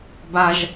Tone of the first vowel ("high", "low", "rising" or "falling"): high